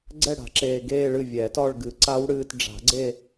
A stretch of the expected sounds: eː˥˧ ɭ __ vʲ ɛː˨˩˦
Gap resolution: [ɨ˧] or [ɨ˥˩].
ɨ˥˩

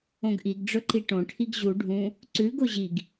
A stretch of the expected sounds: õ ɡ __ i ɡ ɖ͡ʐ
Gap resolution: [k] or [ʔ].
ʔ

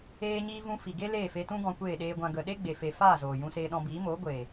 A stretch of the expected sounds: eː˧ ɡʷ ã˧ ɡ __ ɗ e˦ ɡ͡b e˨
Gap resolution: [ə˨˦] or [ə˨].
ə˨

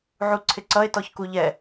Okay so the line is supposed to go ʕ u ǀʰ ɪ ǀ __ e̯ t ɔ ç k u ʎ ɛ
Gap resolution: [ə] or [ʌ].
ʌ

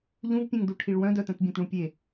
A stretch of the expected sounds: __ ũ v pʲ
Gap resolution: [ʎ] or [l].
ʎ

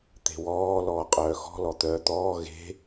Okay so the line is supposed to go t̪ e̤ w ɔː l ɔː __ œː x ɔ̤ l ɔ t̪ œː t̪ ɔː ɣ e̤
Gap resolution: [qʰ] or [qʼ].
qʼ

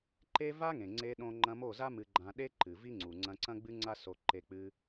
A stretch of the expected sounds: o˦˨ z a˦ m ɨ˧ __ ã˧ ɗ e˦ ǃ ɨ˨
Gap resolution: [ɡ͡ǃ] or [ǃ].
ɡ͡ǃ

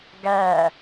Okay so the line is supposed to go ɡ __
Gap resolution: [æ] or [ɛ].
æ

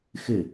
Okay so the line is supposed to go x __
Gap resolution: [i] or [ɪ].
ɪ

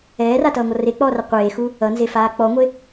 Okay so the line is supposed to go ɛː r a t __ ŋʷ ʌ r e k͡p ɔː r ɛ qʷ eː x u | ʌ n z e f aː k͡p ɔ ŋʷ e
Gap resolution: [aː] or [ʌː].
ʌː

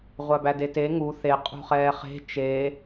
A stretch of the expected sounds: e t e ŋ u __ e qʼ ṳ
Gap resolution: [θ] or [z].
θ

